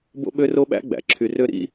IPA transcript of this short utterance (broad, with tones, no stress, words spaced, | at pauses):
bo̰˦ɓø˦ro˦ɓæ̰˦ ɡ͡bæ̰˨˦ǁʰy˧rø˦ ɾḭ˦